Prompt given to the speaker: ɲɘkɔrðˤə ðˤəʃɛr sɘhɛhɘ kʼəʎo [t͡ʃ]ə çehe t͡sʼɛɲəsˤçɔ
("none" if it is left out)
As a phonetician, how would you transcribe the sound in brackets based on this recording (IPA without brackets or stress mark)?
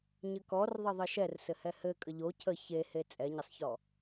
cʰ